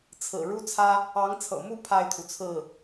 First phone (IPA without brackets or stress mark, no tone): t͡sʰ